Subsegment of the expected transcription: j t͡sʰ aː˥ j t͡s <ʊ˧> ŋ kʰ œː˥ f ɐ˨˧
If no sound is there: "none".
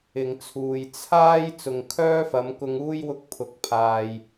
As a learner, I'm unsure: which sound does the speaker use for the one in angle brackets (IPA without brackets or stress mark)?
ʊ˨